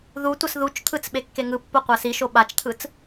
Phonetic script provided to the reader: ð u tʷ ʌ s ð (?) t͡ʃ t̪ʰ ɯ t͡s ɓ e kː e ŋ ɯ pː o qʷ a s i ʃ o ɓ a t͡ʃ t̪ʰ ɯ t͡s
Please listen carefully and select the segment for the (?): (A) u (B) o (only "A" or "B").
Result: A